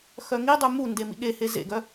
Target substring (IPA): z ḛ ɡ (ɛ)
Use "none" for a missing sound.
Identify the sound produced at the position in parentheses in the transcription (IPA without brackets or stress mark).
œ